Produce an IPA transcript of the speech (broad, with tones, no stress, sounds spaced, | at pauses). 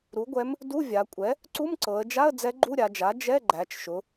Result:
ɾ u˩˥ ɡʷ ɛ˧˥ m | d u˧˥˧ vʲ a˩˧ kʷʼ ɛ˩˥ | ǀ u˧˥˧ m ǀ ɤ˩˧ ə̯ d͡ʒ a˧˥˧ ə̯ d͡z ɛ˧˥ ɡ͡ǃ u˧˥˧ ɾʲ a˩˧ d͡ʒ a˩˥ d͡ʒ ɛ˧˥˧ ɡ͡ǃ æ˩˧ t͡ʃ ʃ ʊ˩˧